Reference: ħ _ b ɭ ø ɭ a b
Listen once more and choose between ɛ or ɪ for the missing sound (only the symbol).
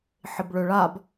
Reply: ɪ